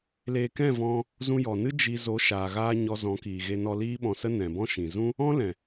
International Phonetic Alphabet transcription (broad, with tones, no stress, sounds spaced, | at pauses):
l eː˧ k ɛ̃˦˨ v ɔ̃˧ | z ũ˧ j ɔ˨ n ɨ˦ d͡ʒ i˧ z o˨˦ ʃ aː˨ ɣ aː˧ ɲ ɔ˧ z ɔ̃˨˦ k iː˨ ɣ e˧ n ɔ˧ l iː˦ ɓ ɔ̃˧ s ə˦ n ɛ̃˨ b ɔ̃˦ ʃ ĩ˨ z ũ˦ | ɔ̃˦ l ɛ̃˨